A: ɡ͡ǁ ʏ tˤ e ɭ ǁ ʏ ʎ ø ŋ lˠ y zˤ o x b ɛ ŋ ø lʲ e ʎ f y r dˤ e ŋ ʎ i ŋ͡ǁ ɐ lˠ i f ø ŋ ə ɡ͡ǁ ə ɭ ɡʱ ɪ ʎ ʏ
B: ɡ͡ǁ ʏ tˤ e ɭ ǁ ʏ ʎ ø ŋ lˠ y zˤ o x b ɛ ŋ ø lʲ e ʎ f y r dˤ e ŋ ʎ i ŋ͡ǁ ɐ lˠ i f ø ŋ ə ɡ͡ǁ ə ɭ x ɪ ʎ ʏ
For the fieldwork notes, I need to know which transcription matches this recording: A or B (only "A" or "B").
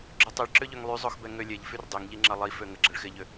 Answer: B